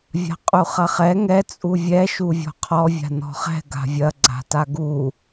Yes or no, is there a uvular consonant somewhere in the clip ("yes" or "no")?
yes